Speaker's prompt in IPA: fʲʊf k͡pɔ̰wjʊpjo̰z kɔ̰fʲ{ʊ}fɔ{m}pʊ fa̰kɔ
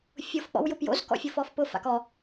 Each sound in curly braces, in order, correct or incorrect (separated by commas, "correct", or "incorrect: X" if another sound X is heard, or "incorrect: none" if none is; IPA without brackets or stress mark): correct, incorrect: f